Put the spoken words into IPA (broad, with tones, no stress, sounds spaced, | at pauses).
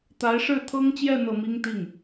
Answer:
t̪ a˧˥ ɪ̯ ʂ ɻ̩˥˩ t̪ʰ ɤ˥ ŋ t͡ɕ j ɛ˥˧ n̪ ɤ˥˩ m i˥ ŋ t̪ i˥˩ ŋ